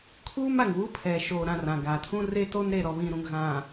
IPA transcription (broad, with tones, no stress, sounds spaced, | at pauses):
kʰ uː˦ m a˨ ŋ w u˦ pʰ ɛ˨ ʃ oː˨ ɾ ã˨ r ã˨ ɡ a˨ tʰ ũ˦ r e˦ t o˦ n ɾ e˨ ɾ ɔ˨ β ĩ˨ ɾ ũ˨ ŋ ɣ ã˨